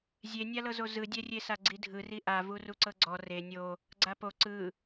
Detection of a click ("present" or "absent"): present